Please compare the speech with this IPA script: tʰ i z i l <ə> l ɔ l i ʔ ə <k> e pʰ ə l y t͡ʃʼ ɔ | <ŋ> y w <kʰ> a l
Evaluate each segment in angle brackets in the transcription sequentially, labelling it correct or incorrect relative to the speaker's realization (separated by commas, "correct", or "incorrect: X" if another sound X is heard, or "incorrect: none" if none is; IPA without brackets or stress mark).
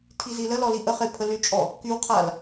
correct, incorrect: χ, incorrect: k, incorrect: qʰ